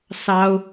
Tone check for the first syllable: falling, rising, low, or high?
high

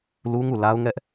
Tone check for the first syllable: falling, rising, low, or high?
high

